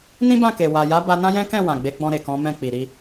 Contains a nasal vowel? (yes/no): yes